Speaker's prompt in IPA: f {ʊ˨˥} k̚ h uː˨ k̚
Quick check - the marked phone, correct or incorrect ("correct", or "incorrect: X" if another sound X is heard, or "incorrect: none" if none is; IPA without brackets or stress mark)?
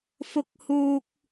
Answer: incorrect: ʊ˨